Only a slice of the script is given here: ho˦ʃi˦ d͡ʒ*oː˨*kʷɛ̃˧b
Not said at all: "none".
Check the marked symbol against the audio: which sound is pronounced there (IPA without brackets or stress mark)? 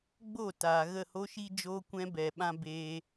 oː˧